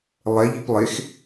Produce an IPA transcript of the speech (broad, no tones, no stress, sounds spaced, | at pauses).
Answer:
lˠ ɛ ʎ i p lˠ e x